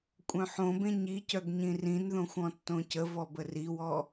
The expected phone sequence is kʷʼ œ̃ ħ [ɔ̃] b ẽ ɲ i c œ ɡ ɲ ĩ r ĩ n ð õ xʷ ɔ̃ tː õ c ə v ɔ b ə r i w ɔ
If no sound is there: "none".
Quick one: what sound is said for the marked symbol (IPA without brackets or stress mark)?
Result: õ